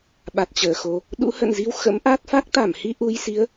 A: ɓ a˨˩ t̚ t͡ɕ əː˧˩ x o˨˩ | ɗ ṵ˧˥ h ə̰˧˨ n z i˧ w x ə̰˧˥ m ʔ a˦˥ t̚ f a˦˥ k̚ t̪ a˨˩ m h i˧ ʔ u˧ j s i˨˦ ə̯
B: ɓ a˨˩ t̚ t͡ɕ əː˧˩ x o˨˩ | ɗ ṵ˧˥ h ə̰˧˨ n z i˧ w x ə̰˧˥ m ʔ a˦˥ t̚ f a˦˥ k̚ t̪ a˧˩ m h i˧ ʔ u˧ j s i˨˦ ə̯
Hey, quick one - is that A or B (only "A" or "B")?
B